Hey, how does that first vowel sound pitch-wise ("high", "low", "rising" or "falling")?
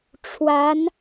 rising